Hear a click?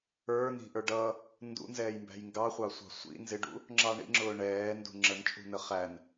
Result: yes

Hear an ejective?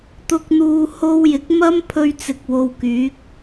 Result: no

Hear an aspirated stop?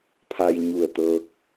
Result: yes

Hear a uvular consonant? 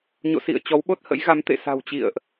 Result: no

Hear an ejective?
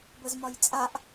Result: yes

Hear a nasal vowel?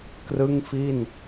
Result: no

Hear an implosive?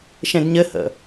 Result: no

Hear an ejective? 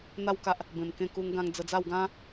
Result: no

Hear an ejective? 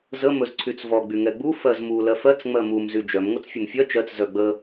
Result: no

